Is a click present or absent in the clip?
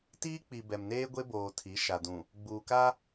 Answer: absent